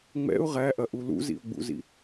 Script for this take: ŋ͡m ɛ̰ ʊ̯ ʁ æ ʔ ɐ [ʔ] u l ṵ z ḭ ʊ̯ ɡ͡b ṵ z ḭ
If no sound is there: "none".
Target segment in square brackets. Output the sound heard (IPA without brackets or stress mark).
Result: ʔ